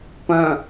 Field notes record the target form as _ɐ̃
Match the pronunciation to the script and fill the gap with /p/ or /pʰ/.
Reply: p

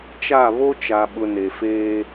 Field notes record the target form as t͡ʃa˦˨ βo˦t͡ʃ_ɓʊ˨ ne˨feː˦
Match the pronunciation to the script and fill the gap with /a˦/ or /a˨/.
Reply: a˨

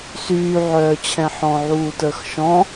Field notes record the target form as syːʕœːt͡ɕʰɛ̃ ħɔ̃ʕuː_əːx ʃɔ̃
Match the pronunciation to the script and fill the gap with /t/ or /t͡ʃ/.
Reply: t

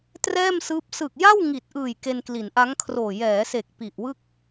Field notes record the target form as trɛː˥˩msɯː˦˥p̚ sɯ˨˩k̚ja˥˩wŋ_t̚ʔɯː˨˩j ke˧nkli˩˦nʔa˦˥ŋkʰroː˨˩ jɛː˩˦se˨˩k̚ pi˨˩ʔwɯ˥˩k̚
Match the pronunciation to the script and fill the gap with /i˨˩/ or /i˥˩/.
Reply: i˨˩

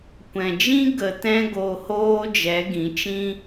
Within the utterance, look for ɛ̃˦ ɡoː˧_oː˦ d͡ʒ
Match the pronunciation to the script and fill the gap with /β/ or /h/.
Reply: h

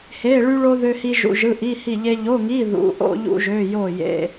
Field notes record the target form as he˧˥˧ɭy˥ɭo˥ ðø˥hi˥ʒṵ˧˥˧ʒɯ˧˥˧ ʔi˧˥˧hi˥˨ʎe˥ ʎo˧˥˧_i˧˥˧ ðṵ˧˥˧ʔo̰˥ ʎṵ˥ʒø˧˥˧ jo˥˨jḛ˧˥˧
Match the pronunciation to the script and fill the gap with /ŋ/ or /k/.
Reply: ŋ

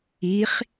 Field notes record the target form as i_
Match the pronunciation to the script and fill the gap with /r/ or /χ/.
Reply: χ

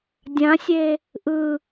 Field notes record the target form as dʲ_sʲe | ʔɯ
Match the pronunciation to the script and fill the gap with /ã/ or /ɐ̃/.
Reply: ã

